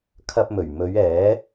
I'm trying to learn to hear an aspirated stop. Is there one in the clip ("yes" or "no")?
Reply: yes